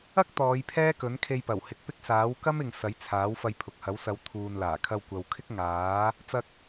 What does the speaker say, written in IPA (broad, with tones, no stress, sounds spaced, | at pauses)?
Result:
ɐ˥ k̚ t̪ ɔː˨˧ j pʰ ɛː˥ k ɵ˨˥ n kʰ e˧ j p ɐ˨˩ w h ɪ˨˥ k̚ p ɪ˥ k̚ s aː˨˥ w k ɐ˥ m ɪ˨ ŋ s ɐ˨˥ j t͡sʰ aː˨˥ w f ɐ˧ j pʰ ʊ˨ k̚ h ɐ˨˥ w s ɐ˨˧ w t̪ʰ uː˨ n l aː˨˩ kʰ ɐ˧ w kʷ ɐ˨ w kʰ ɪ˥ k̚ ŋ aː˨˥ | t͡s ɐ˧ k̚